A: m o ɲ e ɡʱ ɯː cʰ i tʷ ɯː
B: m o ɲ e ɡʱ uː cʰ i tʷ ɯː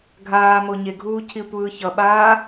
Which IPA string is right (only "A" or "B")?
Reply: B